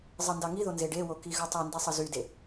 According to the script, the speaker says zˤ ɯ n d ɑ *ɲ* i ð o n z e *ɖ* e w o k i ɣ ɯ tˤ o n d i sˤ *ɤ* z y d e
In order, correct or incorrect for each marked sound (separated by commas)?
incorrect, correct, incorrect